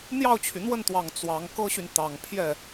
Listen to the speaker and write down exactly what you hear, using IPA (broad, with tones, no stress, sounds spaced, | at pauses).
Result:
n̪ j ɑ˥˩ ʊ̯ t͡ɕʰ y˩ n̪ w ə˥˩ n t̪ w ɑ˨˩ ŋ t͡s w ɑ˧˥ ŋ k ɤ˥ ɕ y˨ n t̪ ɑ˨˩ ŋ pʰ j ɛ˥˩